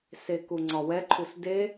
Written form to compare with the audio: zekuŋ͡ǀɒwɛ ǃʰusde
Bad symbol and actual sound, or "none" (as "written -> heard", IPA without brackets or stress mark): z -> s